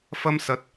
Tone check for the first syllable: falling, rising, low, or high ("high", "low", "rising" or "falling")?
high